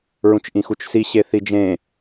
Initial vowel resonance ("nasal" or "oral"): nasal